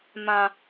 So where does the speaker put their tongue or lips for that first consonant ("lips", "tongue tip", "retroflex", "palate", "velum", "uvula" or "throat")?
lips